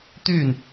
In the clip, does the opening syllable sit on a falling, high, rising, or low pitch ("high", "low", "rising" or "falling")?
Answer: falling